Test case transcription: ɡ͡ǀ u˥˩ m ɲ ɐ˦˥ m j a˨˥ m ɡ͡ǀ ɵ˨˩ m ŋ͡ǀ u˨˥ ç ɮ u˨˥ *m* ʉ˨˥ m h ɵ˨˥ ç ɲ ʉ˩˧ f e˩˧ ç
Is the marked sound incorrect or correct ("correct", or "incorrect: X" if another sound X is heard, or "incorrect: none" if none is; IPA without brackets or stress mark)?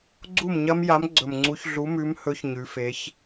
correct